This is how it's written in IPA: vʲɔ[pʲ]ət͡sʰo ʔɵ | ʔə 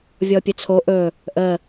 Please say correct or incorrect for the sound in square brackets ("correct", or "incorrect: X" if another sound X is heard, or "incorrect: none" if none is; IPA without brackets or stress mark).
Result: correct